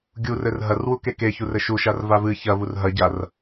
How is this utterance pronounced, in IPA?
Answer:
ɡʲurɘr ɦɐrwuke keçurɘ ʃuʃarva vɨ çɐvur ɦɐɟar

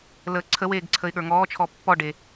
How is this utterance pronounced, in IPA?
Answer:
ləːǀʰəweːɡ ǀʰəɪ̯ɠə˞ŋɔːt͡ʃʰɔ pːɔɖe

